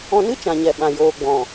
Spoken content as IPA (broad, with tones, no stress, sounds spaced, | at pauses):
ɔ̃˧ n ɨ˦ t͡ʃ ã˨ ɲ ɛ˨ ɓ ã˨ j oː˨ ɡ͡b ɔ̃˨